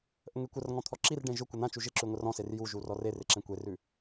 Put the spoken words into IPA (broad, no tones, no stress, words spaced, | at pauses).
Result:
ʔəŋekʷərŋɔ̃ t̪ʰɔǁirɖẽ ʒʊkʷə n̪ãt͡ʃu ʒɪǁʉ ŋʷərɔ̃ser juʒu rɔrerɪ ǁẽkʷerʉ